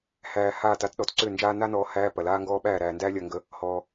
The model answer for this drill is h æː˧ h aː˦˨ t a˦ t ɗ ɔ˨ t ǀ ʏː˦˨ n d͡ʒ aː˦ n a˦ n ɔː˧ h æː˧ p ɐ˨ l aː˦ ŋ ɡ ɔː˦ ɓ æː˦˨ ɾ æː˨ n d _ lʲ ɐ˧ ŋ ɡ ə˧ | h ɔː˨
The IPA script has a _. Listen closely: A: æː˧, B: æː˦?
B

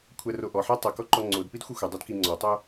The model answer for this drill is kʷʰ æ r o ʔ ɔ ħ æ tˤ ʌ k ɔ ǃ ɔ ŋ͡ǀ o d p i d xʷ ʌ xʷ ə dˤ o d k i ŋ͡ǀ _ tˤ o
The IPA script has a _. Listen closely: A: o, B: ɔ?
B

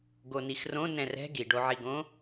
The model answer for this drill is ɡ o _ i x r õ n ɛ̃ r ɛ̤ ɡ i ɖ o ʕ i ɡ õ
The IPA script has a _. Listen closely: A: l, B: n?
B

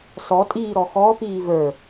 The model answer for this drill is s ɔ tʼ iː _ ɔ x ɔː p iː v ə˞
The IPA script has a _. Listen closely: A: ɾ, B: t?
A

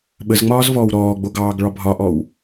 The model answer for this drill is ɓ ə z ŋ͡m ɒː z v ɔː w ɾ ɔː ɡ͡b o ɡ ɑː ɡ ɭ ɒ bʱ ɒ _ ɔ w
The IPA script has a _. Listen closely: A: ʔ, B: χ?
A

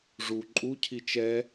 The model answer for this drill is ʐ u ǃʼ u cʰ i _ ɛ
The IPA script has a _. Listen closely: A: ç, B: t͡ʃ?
B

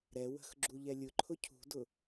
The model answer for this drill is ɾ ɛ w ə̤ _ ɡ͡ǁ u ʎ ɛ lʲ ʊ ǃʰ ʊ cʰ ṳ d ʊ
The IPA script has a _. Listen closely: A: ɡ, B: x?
B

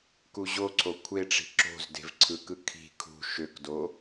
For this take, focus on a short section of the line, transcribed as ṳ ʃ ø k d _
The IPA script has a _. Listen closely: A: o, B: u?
A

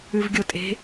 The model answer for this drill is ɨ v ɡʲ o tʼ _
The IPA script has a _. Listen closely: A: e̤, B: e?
A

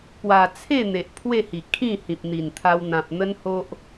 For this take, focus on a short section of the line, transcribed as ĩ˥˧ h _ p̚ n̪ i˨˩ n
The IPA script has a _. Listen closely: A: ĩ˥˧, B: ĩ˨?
B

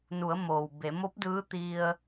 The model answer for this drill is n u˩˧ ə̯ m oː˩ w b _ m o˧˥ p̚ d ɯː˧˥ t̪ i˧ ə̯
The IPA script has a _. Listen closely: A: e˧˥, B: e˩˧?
B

